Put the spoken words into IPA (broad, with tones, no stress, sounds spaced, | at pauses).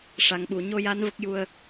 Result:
ʂ a˨˩ ŋ ɓ u˨˩˨ ɲ o˧ j a˧˥ n v ə˦˥ k̚ j u˧ ə̯